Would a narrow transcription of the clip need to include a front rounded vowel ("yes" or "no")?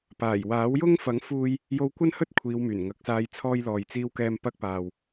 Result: yes